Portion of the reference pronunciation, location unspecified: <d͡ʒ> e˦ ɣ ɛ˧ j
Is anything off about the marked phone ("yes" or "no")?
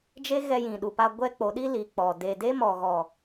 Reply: no